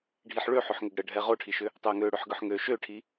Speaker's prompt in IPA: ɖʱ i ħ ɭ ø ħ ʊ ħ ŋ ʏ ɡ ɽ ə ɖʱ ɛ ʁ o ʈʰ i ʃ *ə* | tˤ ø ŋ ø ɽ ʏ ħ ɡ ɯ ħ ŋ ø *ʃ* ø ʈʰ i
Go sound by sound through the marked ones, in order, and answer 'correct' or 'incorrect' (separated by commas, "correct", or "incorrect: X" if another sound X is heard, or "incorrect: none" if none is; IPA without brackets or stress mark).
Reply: incorrect: ʏ, correct